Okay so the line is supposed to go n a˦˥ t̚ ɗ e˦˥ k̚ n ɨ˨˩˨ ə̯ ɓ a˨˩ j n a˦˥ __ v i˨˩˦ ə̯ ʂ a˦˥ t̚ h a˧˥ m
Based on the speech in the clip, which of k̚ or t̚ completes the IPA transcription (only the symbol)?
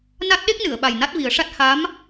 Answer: t̚